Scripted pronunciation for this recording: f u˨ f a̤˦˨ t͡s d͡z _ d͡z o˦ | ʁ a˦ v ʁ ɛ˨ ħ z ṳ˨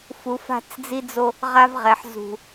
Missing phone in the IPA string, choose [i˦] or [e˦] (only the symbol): i˦